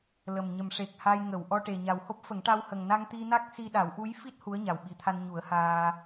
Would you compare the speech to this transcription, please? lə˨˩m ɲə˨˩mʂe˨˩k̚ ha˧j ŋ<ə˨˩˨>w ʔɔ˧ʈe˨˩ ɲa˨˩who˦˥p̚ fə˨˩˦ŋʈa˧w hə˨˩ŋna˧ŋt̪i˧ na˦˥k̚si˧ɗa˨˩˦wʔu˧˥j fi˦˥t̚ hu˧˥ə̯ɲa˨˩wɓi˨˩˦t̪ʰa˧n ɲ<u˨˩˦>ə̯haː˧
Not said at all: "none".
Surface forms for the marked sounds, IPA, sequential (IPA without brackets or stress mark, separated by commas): ə˨˩˨, u˨˩˦